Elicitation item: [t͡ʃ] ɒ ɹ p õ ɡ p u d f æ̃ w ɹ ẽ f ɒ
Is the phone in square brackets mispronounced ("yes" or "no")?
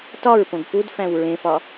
yes